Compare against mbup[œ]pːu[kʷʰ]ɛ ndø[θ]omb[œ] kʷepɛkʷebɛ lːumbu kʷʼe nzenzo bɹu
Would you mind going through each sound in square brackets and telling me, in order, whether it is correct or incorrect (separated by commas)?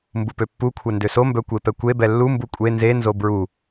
incorrect, correct, incorrect, correct